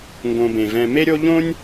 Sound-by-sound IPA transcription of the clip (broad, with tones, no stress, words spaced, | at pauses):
ŋɡõ˨bẽ˩vɛ̃˨ me˥ɾʲo˥ ʎõ˦nʲ